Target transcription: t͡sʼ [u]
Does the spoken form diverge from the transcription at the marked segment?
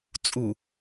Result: no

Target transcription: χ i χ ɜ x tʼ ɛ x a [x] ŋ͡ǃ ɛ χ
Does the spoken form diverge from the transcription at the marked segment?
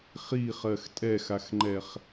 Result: no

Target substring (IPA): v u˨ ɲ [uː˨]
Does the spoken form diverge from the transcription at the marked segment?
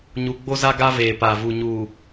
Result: no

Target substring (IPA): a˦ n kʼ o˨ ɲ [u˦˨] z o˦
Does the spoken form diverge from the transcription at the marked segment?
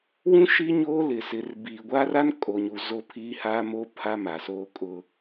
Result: yes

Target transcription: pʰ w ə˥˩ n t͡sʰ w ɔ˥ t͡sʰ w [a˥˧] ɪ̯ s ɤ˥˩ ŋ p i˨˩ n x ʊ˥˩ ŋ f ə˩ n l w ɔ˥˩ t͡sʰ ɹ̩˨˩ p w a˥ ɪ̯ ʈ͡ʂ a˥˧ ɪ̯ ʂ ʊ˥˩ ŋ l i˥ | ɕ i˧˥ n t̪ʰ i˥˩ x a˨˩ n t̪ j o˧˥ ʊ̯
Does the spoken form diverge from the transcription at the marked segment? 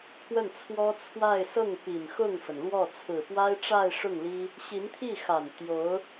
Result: no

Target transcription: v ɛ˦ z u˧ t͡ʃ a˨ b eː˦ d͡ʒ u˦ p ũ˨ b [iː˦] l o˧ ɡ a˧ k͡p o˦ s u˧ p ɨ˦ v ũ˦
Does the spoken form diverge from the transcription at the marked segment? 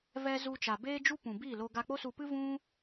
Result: yes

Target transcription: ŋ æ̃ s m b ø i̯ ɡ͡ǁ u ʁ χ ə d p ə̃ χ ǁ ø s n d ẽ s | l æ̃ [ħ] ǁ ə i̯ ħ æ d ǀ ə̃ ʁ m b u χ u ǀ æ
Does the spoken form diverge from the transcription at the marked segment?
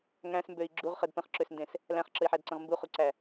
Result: yes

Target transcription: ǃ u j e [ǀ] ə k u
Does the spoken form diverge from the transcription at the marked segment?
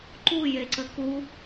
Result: no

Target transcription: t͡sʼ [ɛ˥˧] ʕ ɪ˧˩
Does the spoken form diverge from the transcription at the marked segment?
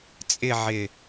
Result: yes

